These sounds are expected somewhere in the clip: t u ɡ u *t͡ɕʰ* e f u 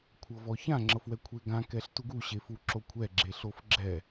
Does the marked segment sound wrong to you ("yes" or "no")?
yes